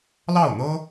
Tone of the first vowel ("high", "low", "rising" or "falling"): falling